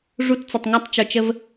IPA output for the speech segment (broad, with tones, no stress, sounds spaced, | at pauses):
ʐ u˦ t t͡s ə˨ tˤ ŋ a˦ tˤ t͡ʃ ɵ˨ t͡ʃ ə˦ v